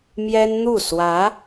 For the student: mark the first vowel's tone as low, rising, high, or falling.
high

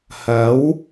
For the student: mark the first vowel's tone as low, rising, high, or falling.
rising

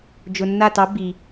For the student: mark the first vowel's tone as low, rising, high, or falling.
low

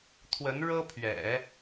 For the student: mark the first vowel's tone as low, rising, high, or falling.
rising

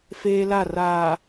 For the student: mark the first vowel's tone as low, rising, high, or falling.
high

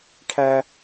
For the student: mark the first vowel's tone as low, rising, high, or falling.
high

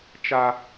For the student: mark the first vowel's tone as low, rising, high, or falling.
high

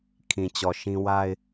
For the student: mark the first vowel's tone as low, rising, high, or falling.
low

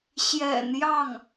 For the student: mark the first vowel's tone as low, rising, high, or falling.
low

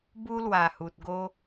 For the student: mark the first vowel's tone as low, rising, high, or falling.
high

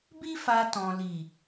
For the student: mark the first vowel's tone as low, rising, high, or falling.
high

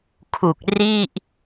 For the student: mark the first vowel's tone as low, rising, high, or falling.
low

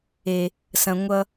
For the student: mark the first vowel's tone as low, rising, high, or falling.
low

